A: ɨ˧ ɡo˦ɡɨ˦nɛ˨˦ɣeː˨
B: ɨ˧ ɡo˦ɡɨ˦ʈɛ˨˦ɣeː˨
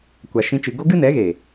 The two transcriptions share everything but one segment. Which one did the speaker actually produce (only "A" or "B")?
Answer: A